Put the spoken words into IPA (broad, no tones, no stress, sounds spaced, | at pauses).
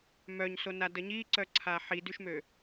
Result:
m œ ɲ s o n a d ə ɲ i ǀ œ ǀʰ a ħ i d y ʃ m ø